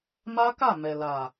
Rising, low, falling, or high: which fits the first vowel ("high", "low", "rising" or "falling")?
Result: high